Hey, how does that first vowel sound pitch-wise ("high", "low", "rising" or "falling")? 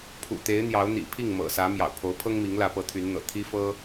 low